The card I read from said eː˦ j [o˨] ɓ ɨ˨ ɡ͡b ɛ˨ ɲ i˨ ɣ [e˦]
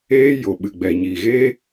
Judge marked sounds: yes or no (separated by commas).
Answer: yes, yes